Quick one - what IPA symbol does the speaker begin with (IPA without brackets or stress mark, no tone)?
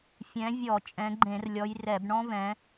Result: fʲ